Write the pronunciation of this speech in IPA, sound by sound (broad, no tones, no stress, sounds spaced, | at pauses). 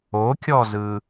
o kʲ ɔ z ɯ